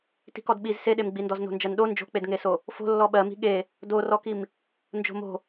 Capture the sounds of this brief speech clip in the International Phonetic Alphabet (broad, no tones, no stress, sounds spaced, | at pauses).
t i̤ k ɔ d ɓ i z s e ɗ e m ɡ͡b i n d ɔ z n o̤ n d͡ʒ ɜ n ɗ o n d͡ʒ o̤ k͡p e d ŋ e s o | f o̤ lː ɔ ɓ ɜ m i̤ ɠ e | d o r ɔ k i m | n d͡ʒ o̤ m o̤